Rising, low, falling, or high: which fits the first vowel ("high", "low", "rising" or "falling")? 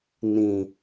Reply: low